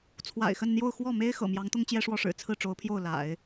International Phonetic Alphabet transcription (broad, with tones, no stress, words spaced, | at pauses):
t͡sʰwa̰˨˩ɪ̯xə˥˧nn̪jo˥˧ʊ̯ xwɔ˥˩me˥ɪ̯ xɤ̰˨˩mjɑ˧˥ŋt̪ʊ˥ŋ t͡ɕjɛ˥ʂwɔ˥ʂɻ̩˨˩ t͡sʰɹ̩˥˩ʈ͡ʂo˧˥ʊ̯pʰjo˥˩ʊ̯ la̰˨˩˦ɪ̯